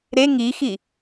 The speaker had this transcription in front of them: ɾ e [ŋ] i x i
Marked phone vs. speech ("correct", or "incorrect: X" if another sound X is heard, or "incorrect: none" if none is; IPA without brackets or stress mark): correct